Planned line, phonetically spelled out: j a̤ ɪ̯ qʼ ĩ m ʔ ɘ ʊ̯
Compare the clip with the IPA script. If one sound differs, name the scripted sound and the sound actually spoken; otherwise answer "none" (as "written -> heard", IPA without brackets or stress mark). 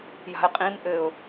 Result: none